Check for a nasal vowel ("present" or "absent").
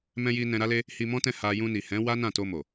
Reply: present